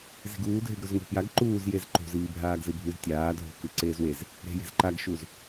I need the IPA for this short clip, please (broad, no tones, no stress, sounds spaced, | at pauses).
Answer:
z i̤ ɡ uː dʱ e ɡ ɾ o z ŋ e̤ p j a ɡ ǃ uː z j e z ǃ o̤ z iː bʱ aː ɡ z ɨ bʱ ʉ z tʲ aː dʱ o̤ k ɨ ǀ eː z w e z | ɾ e̤ j e̤ z ǃ a ɡ ʃ u z